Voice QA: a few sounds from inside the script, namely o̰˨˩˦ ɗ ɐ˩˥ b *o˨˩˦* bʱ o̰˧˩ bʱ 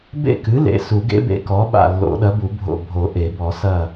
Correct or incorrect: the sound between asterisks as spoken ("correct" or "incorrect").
incorrect